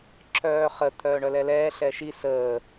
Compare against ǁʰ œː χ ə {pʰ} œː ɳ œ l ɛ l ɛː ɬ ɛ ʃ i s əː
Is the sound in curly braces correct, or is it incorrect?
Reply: incorrect: t̪ʰ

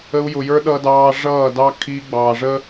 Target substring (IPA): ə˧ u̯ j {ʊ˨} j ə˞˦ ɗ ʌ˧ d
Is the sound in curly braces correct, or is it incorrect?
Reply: correct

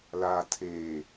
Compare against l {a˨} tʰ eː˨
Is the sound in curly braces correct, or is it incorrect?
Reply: correct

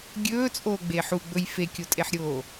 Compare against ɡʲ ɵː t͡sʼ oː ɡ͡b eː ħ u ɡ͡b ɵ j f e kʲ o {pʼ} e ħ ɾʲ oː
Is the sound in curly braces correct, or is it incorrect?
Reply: incorrect: tʼ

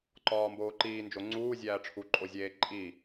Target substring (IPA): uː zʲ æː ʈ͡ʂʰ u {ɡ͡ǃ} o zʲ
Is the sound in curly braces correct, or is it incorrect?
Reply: incorrect: ǃʼ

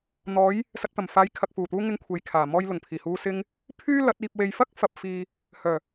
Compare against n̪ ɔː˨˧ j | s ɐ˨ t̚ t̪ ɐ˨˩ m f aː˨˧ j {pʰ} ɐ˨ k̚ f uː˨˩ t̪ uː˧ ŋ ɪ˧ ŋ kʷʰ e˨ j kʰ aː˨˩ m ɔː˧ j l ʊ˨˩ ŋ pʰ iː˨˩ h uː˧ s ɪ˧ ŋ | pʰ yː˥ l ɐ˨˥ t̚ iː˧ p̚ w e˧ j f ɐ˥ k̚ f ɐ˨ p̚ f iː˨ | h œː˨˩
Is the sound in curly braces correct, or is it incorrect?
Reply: incorrect: kʰ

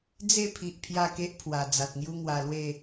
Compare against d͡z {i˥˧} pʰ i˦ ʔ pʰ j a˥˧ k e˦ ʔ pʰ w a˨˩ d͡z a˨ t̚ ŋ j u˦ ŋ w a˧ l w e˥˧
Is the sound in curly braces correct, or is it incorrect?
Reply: incorrect: e˥˧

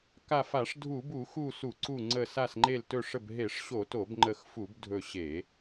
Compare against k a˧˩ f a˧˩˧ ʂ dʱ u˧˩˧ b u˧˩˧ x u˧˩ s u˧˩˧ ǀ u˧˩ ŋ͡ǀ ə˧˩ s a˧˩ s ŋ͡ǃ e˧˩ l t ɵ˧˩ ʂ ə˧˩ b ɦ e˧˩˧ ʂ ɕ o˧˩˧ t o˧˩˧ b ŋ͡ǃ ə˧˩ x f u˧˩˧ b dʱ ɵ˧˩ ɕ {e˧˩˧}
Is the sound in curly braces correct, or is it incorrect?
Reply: correct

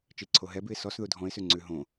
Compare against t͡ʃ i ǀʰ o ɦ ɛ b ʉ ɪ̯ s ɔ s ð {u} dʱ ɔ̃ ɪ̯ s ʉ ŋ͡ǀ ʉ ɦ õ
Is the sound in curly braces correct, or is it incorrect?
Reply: correct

